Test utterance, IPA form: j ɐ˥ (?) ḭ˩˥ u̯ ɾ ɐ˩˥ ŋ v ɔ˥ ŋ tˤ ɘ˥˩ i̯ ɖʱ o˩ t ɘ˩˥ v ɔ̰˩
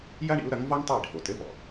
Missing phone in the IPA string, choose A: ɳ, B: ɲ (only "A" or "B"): A